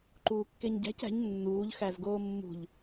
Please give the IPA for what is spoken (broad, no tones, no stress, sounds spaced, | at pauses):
ǃ uː kː e ɲ ɟ æ̤ c æ̤ ɲ nː uː ʎ x æ z ɡ oː mː ṳ ʎ